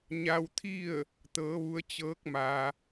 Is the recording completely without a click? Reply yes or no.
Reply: yes